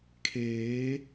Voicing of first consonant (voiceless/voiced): voiceless